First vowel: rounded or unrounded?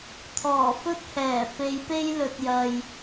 rounded